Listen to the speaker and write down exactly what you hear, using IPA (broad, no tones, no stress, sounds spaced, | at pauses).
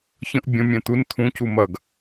ç ə̃ ʔ bʲ ə̃ mʲ ɛ̃ t̪ u n t̪ʰ ũ c u m ɐ ɡ